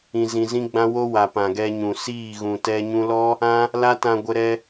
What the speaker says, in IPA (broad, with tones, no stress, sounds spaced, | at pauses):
ĩ˧ z ĩ˧ z ĩ˦ ɡ͡b ã˦ w o˦ w a˨ p ã˨ ɡ ɛ˧ ɲ ũ˨ s iː˦˨ ɣ ũ˨ t ɛ˧ ɲ ũ˧ l ɔ˦ | ã˦ | l a˦ t ã˧ ɡʷ ə˧ ɾ ɛ˧